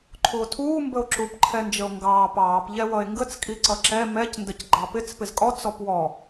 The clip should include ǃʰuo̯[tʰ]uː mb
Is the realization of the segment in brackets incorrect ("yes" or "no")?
no